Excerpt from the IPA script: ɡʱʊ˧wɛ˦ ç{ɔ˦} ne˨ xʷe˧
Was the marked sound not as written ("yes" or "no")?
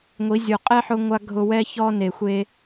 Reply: no